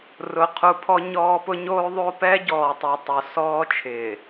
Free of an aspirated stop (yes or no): no